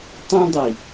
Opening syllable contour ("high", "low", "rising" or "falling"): high